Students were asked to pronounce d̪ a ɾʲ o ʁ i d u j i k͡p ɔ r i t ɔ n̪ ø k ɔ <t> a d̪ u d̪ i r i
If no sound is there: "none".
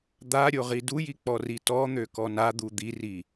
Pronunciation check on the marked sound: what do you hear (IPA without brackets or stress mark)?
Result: n